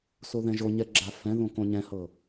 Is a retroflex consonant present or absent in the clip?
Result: absent